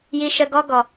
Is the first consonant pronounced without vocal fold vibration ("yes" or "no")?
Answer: no